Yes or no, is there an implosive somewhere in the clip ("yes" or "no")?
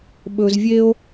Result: yes